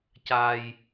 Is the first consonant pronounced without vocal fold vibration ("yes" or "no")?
yes